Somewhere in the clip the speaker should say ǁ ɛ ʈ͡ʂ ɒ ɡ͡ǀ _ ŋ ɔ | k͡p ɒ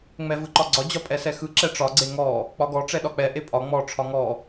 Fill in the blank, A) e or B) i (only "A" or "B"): A